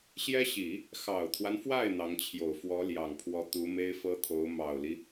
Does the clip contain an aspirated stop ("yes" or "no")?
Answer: yes